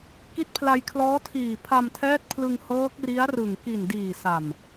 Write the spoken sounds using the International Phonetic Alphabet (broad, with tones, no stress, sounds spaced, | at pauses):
k i˦˥ t̚ pʰ l a˧ j kʰ l ɔː˦˥ tʰ iː˨˩ pʰ a˧ m tʰ ɛː˦˥ t̚ pʰ l ɯ˧ ŋ h ɤː˦˥ k̚ r i˦˥ a̯ r ɯ˨˩ ŋ k i˨˩ n d iː˨˩ s a˨˩ m